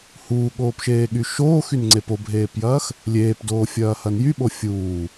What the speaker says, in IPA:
h uː ɠ oː p ʃ eː ɠ y ʃ oː x y n ŋ͡ǀ e p o bʱ eː p j ɐː x | lʲ eː p d oː fʲ ɐː h ɐ n j y ɓ o fʲ uː

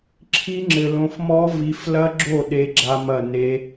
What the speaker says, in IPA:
ǁʰ i˦˥ ŋ͡ǁ ɘ˨ l õ˨˦ f m ɔ˦˥ v i˨˦ f l ɐ˦˥ ɡ͡ǁ o˥˩ ɗ e˦˥ ɡ͡ǁ a˦˥ m ɐ˥˩ n e˦˥

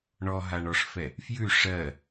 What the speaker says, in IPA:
ɳ ɔ ɦ a ɳ ɔ ʂ f ɛ | f j ʉ ʂ ɜ

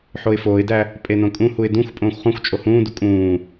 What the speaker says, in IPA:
ħ o ɪ̯ f oː ɪ̯ d æ | pʼ e n õ kʼ ũ h u ɪ̯ d ũ xʷ pʼ õː xʷ χ ũ xʷ t͡ʃʼ o h ũː d u kʼ ũː

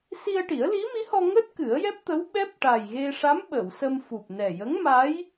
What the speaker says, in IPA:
s i˧ ə̯ ʈ i˨˩˦ ə̯ l i˧˥ m i˧˥ h ɔ˧ ŋ əː˦˥ t̚ k ɨ˨˩˦ ə̯ j ɛ˦˥ p̚ t̪ ə˧˥ w ɓ ɛ˦˥ p̚ ʈ a˨˩ j ɣ e˧ ʂ a˧˥ m ɓ ə˨˩˨ w s ə˧ m f u˨˩ p̚ n ɛ˨˩ j ə˧˥ ŋ m a˧˥ j

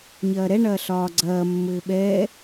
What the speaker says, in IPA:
ɲ ɐː ɾ ɛ ɳ ɐː ɬ ɒː ɡ͡ǀ ɐː mː ɘː ɓ ɛː

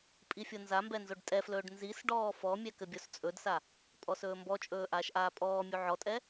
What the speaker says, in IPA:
pʼ i fʲ o n z a m b ɛ n z o ɖ tʼ ɛ f l ɵː ɖ n z i s ɖ ɔː f ɔ mʲ ɛ k ɘ bʲ o s t͡sʼ ɵ d s a | pʼ ɔ s ɵː m b ɔ t͡ʃʼ ɵː ʔ aː ʃ ʔ aː pʼ ɔː mʲ u ʕ ɔ tʼ ɛ

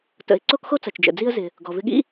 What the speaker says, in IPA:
t ə̰˩ ɪ̯ ǀ o˥ k x o˥ t͡s ɐ˩ t͡ʃ d͡ʒ ə̰˩ d͡z i˥ ə̯ z ɪ˩ | ɡ ɔ˩ v ɪ˧ ɠ ḭ˥

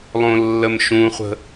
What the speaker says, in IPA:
lˠ õ lː ə m ʃ ũ χʷ ə̤

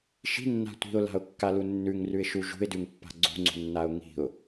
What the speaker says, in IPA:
ʃ i̤ nː a̤ tʷ i̤ ʊ̯ l a̤ ʊ̯ kː a l u nː ʉ ŋ r ʉ ɪ̯ ʃ u ʒ ṳ ɪ̯ d ʉ ŋ pː a̤ ɡ͡ǀ ṳ ŋ͡ǀ ṳ nː a ʊ̯ ŋ i̤ ʊ̯

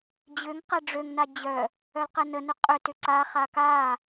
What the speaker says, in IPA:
d͡ʑ ʏ ŋ q ɛ ɖ͡ʐ ø ŋ n a d͡ʑ œ | œ l q ɛ n ə n ʏ qʼ ʏ t ʏ ǀ a χ a k a

